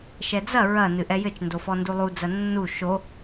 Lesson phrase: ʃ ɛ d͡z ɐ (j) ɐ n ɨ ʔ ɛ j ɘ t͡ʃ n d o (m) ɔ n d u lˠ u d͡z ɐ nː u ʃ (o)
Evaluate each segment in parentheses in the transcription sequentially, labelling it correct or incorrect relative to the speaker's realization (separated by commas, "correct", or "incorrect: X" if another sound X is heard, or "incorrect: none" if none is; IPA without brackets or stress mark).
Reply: incorrect: ɹ, incorrect: f, correct